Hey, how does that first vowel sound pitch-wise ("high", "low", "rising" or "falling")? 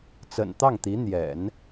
low